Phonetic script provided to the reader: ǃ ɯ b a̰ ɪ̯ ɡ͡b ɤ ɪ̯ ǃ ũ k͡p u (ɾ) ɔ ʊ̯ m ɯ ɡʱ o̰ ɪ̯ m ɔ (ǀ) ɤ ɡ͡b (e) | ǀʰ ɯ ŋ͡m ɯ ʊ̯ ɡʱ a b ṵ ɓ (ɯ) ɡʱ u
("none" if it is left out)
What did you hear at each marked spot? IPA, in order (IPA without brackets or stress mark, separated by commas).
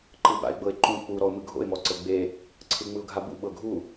ɾ, ǀ, e, ɤ